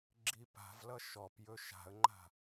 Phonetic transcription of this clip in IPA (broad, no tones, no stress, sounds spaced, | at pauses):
ɡ͡ǁ i p a̤ v l ʌ ʃ ɔ p j ɵ ʃ a̤ ə̯ ŋ͡ǃ a̤